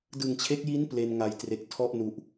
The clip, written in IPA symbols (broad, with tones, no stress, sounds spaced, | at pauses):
d ɯ˨˩ ŋ t͡ɕʰ e˦˥ k̚ j i˦˥ n p l e˧ n ŋ a˨˩ j t r e˨˩ k̚ tʰ ɔ˥˩ ʔ n u˨˩ ʔ